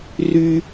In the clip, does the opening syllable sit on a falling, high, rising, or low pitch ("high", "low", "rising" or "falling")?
high